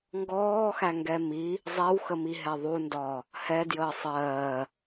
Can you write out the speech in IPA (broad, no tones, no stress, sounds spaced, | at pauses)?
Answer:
ŋ ɡ ɔː x æ ŋ ɡ ɛ m i | zˤ ɛ w x ə m i ɦ ɛ ðˤ u n d ɒː | h ɛ d j əː sˤ ɜː